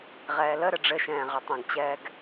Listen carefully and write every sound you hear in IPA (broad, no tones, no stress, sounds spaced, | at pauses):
ʁ ɛː l ə ɾ ɘ ɖ͡ʐ ɘ ʃ ɛ̃ː ʁ ɐ tˤ ɐ̃ ɡ t͡ɕ ɛː ɡ